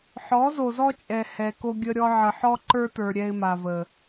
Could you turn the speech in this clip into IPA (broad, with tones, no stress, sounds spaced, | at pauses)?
ħ ɔ˨˦ z o˨ z ɔ˦ t͡ʃʼ ɛ˨ h ɛ˨ k o˦ ɡʲ ə˦ ɾʲ ɔ˦ ʕ ə˨ ħ ɔ˦ ǃ ə˞˦ t ə˞˨ ɾʲ ɛ˦ ɪ̯ m a˨ v ə˨